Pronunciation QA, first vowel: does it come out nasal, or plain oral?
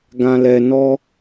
nasal